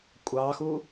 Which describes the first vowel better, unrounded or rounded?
unrounded